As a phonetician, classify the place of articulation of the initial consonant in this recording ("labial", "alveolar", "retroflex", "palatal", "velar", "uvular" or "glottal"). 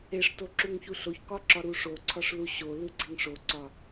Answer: retroflex